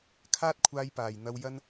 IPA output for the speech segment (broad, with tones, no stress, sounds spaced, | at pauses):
kʰ aː˥ t̚ kʷʰ aː˧ j p aː˨˩ j n̪ ɐ˧ w j ɐ˧ n